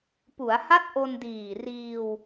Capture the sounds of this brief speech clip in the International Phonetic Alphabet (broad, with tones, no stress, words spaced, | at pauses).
pu˩˦a̯ha˦˥t̚ ʔo˧ndiː˨˩ riː˧w